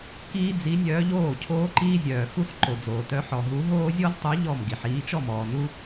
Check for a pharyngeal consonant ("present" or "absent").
present